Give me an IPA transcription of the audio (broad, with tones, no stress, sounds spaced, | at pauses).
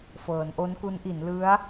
f ɤː˩˦ n ʔ o˦˥ n k u˦˥ n ʔ i˩˦ n l ɯ˦˥ a̯